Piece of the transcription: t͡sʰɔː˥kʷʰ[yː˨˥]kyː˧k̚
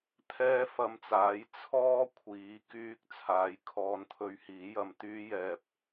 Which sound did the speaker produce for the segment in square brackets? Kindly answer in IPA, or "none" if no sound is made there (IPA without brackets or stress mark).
iː˨˥